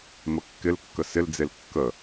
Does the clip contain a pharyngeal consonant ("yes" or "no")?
no